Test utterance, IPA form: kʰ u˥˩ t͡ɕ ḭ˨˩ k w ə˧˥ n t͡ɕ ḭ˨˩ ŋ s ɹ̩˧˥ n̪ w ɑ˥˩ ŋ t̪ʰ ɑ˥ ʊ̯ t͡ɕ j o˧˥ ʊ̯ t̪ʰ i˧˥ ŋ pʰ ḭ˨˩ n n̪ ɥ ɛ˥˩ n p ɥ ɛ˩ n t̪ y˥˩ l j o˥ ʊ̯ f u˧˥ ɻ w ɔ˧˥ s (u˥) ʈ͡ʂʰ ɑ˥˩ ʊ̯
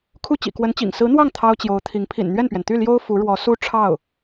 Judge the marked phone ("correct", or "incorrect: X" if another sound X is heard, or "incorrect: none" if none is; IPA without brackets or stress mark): correct